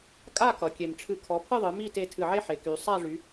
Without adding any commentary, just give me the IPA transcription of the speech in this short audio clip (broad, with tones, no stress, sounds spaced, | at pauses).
kʼ a˥˧ k ʌ˩˧ kʲ e˧˩ m ʈ͡ʂʰ ɨ˧˩ kʰ ɔ˩˧ pʰ ɨ˥˧ ðˤ ɨ˩˧ m i˥˧ t e˧ tʰ ɨ˧˩ ʕ e˥ ħ e˩˧ k y˩˧ sˤ a˥˧ ʐ y˩˧